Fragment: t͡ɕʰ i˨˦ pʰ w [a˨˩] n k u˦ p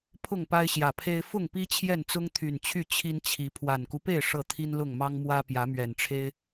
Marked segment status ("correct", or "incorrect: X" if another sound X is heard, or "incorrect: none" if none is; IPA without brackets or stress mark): correct